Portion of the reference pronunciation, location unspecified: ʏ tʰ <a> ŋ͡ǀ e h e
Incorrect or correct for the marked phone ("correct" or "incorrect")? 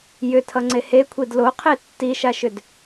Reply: incorrect